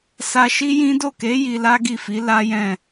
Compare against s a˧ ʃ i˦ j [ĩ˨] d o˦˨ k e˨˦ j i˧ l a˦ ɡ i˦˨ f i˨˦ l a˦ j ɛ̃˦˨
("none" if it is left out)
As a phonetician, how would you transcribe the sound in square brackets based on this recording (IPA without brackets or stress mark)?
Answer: ĩ˦